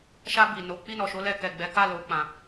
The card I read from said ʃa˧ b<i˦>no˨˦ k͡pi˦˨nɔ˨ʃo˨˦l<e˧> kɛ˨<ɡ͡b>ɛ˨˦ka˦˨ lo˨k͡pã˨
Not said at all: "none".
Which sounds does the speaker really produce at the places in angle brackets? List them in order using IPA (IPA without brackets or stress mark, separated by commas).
i˨, ɛ˧, ɡ͡b